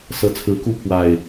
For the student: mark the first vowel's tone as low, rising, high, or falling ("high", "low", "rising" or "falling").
rising